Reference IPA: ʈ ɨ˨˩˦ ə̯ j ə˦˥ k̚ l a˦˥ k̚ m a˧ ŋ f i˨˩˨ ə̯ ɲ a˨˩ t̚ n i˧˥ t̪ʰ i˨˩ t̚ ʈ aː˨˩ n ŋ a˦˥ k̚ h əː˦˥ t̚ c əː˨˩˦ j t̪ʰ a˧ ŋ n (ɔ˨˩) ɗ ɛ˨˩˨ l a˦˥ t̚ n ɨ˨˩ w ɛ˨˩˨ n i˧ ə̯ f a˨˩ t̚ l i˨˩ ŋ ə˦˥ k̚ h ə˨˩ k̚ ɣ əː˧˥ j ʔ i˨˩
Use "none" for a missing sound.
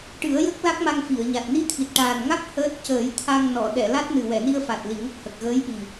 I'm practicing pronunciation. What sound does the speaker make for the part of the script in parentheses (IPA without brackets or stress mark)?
ɔ˨˩˨